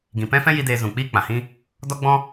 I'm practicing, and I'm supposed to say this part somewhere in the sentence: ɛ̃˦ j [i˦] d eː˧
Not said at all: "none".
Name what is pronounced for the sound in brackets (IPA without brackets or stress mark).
i˦